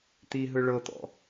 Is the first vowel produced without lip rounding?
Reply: yes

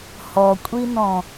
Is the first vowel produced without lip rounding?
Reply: no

